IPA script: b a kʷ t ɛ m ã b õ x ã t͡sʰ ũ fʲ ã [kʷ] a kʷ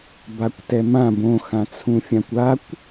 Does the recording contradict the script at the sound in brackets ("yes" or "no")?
no